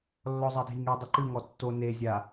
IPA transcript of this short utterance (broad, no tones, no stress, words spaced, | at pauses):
lːɔzˤadʱiŋe dˤɨǃɨ ŋɔtːo ne zʲa